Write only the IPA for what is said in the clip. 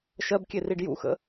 ʃɜbkʲe riɖjṵxə̰

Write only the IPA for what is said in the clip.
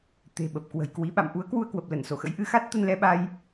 t̪e̤˨˩ɓə˨˩p̚kwə̤˨˩jkwi˨˦ ɓa̰˧˨mʔu˨˦ə̯kwu˧ə̯kwə˨˩p̚ lə˧˩nso˧˩xə̰˧˥jʔɨ˨˦ xa˦˥t̚t̪ə˧nlɛ˧ɓa˧j

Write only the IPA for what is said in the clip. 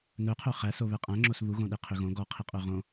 nœqʰœ χæs oβɛqʼæ̃ ŋ͡ǁosβuɣõɗe qʰøɣõ ɡɔqʰiqʼœ ʁõ

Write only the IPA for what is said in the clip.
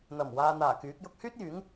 n̪ɐ˨˩m waː˨n̪aː˨˩ kyː˨˥k̚ jʊ˧k̚hyː˥t̚jyː˨˥ŋ

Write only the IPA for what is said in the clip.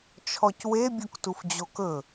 t͡ʃʰɔcwe bʲuktufd͡ʑokɵ

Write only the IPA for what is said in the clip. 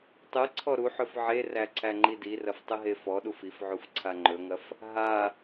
tˤɨ ǀʰɔɾuħɵf ʕeræ ǀʰæŋ͡ǃidirɐf tˤɨɦefɔɗuf ifʕuf ǀʰaŋ͡ǃɵŋɐf | ɦa

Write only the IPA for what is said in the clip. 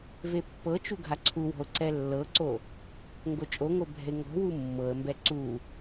vepːɤt͡ʃu ɡʱaǀʰuwɔ̤ʊ̯ ǀɛlːɤǀo | ŋɡot͡ʃʼoŋo bʱɛ̤ɪ̯ŋɔ̤wu mːɤə̯mbɛ ǀu

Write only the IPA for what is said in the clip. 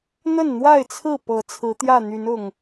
n̪ə˥˨nn̪wa˥˨ɪ̯t͡sʰɹ̩˥˨ pɤ˨˦ t͡sʰɹ̩˨˦t̪jä˥˨n̪y˨˦nʊ˨˩ŋ

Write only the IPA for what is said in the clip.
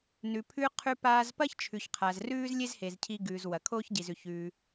nʉ˩ pʰʉ˧qʰʉ˧ paː˧zpɐ˥çt͡ʃʰʉ˩ç qʰa˩zrʉː˥z lʲe˥zhe˩z cʰi˧ɡʉː˩z wɐ˩kʰoː˥çɟi˩zʉ˩ç ʉː˩

